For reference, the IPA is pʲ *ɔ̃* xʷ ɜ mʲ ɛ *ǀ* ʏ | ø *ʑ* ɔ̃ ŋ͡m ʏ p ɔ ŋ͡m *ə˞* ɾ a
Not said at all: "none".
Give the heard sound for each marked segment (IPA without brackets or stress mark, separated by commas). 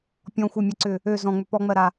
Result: ɔ̃, ǀ, z, ɜ